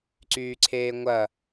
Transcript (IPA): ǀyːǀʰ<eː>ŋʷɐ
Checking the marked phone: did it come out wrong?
no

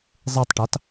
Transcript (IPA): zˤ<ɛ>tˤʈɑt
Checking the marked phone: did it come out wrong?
yes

